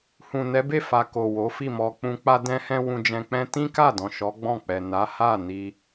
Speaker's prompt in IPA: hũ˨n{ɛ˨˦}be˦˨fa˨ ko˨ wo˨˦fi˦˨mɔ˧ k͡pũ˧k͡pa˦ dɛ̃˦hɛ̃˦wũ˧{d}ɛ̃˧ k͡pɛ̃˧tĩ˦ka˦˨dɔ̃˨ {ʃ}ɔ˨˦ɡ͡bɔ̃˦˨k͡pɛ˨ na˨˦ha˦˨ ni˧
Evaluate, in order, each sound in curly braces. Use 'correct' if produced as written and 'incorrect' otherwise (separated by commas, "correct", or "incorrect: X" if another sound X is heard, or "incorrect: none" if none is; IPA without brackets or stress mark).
correct, incorrect: d͡ʒ, correct